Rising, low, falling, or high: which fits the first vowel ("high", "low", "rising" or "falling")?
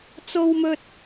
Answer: high